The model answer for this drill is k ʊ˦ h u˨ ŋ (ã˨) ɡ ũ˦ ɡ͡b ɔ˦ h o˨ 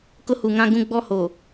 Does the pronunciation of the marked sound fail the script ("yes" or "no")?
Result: yes